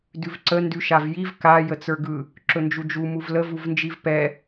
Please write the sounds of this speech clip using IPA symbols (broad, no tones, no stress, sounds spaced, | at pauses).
d ʉ v ǀ ə n d ʉ ʃ a v j i v k a j ə t͡s ə˞ ɡ ɯ | ǁ ɵ n d͡ʒ u d͡ʒ u m u v l ə v u v n d͡ʒ i v p ɛ